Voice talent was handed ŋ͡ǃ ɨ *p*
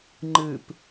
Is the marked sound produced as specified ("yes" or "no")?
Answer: yes